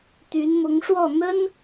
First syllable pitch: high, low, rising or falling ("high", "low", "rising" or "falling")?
rising